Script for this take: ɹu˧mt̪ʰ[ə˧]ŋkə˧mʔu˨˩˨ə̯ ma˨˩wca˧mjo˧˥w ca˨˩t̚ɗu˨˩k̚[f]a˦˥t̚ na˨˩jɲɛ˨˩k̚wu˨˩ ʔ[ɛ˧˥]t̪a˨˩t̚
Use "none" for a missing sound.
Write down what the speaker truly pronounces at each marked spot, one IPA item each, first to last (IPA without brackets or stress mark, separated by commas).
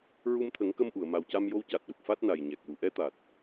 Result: ə˨˩˦, f, ɛ˧˥